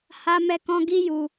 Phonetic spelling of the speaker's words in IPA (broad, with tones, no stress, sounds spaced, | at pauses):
h a˦ m ɛ˦ k ɔ̃˦ ɡ i˦ j u˧